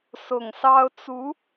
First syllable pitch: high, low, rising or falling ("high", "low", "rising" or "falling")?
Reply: low